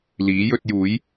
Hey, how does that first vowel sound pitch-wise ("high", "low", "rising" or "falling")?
rising